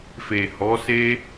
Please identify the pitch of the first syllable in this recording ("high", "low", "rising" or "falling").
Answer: low